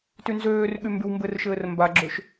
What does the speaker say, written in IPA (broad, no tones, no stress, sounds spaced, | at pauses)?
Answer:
t y n z øː r ɠ y m b y w m b ɘ r ʃ ɘː r m b a ɡ͡ǁ ø ʃ